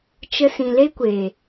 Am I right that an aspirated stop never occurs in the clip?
yes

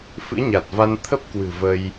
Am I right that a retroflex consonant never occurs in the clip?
yes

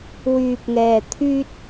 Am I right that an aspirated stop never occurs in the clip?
no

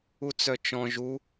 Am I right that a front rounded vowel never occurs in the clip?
no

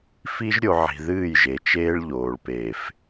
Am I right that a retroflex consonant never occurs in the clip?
no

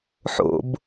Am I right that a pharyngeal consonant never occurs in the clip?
no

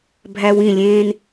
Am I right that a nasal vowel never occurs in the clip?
no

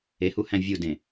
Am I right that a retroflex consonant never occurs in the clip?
yes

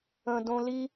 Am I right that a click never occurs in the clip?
yes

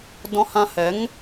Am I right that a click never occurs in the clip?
yes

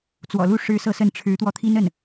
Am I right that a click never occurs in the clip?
yes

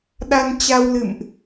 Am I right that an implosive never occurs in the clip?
no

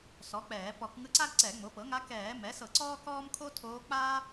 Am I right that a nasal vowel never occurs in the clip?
yes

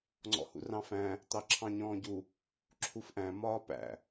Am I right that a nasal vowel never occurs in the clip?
no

